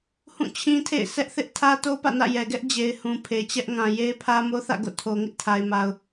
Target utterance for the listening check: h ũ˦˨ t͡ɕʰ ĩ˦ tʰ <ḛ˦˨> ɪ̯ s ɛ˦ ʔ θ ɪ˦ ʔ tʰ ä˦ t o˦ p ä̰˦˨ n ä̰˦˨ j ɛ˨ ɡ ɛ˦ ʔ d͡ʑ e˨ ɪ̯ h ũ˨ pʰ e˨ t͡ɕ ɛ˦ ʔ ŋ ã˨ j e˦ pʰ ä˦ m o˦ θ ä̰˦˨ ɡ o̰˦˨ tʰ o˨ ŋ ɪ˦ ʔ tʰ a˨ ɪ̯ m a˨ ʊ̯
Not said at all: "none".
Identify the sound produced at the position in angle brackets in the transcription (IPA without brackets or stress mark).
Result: ḛ˦˨